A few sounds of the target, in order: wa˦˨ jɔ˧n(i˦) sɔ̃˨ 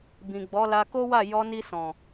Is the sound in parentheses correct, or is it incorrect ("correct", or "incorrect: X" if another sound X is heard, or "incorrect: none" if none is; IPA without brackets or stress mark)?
incorrect: i˧